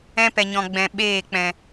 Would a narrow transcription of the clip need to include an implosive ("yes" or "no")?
yes